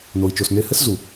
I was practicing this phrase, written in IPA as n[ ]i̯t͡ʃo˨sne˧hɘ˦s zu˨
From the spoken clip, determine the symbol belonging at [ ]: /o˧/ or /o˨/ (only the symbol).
o˨